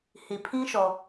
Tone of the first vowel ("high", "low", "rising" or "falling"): low